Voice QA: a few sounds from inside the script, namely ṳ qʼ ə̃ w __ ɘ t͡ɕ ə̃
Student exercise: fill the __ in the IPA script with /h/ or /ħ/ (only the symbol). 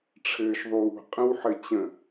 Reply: ħ